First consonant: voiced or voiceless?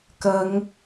voiceless